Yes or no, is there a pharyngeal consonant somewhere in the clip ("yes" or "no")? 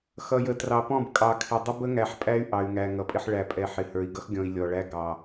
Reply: yes